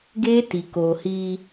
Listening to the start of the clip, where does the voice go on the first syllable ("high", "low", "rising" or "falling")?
high